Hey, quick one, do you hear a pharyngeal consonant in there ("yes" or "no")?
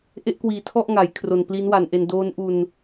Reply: no